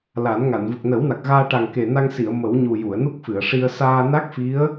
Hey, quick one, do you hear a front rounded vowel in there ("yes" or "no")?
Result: no